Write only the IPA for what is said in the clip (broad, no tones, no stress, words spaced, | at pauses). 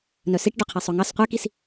nœsiʈ ɖʉqʰisˤɵŋɑs qʷɛkis